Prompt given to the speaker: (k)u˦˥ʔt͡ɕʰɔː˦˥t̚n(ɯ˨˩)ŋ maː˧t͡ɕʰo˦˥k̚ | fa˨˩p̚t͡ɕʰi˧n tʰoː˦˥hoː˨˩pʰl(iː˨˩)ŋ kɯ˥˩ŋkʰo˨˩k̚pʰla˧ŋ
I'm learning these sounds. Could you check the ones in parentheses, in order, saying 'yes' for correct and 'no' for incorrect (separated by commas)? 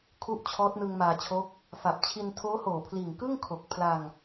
no, no, yes